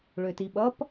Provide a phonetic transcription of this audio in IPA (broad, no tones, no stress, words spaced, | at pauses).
ɭøtiɓʌp